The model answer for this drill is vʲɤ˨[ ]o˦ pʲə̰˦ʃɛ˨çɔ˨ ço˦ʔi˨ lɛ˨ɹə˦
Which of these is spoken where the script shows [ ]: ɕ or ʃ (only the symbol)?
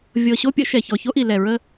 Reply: ɕ